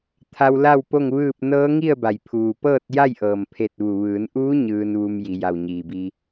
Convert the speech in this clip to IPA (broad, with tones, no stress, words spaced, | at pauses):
t̪ʰa˧wla˥˨wpo˥˨ŋʋɯː˥˨p̚ nɤː˧˥ŋi˥˨ə̯ba˩j pʰuː˧˩ pɤː˥˨t̚ja˥˨jʔɤː˩m pʰe˧˩t̚ʋu˩ʋɯː˩˧nʔuː˧˥ ɲɯː˧nʋu˧m ji˩˧ja˧˩wɲiː˩bi˧